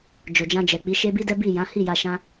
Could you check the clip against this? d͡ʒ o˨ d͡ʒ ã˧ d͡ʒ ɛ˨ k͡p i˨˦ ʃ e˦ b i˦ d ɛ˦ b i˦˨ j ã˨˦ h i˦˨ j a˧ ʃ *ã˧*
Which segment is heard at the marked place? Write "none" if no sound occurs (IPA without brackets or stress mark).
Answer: ã˧